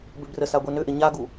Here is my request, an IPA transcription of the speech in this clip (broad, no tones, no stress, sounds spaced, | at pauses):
b ʏ b r ə s a ɡʷ ɛ n ʏ ʔ ɪ ɲ a ɡ u